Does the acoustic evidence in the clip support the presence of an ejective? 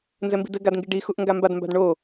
no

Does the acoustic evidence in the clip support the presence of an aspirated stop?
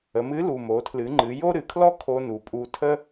yes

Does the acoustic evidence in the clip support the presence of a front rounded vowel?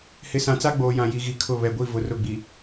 no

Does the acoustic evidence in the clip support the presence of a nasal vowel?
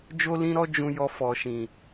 yes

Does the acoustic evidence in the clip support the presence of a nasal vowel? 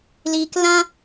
yes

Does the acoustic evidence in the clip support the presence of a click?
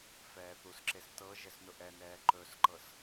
yes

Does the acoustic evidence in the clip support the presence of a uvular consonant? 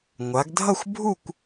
no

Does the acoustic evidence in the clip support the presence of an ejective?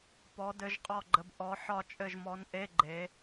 yes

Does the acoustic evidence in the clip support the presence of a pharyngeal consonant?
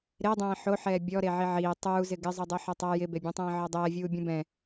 yes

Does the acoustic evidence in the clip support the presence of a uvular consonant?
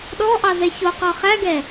yes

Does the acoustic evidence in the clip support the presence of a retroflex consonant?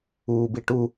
yes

